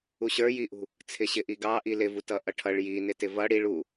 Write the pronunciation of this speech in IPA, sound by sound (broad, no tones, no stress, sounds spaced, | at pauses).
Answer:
u ɕ ə˞ j i ʔ ṳ | t͡sʰ ɪ ɕ ɪ ʔ i ɡ ɑ ʔ i l ɪ v u t ʌ ʔ ʌ ʈʰ ʌ ɭ j i n ɪ t ɪ v ʌ ɽ i ɭ u